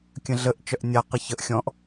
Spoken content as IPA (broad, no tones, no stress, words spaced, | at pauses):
kʲə̃ɮəʔ t͡ʃœʔnʲa qəçəʔ xʲɔ̃ʔ